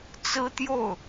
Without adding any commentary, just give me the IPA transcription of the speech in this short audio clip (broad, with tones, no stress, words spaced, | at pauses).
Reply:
t͡sɹ̩˥ t̪jo˥˩ʊ̯